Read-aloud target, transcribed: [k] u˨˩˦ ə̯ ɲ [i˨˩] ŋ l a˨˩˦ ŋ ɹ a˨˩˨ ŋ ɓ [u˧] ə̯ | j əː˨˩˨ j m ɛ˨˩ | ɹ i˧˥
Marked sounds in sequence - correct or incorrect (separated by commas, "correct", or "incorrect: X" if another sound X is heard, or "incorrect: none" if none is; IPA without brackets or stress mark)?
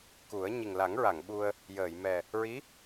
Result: correct, correct, correct